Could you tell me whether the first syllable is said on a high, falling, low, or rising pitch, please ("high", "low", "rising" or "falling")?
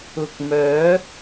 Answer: low